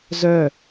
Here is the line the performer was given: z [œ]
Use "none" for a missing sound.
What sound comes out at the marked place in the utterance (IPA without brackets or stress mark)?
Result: œ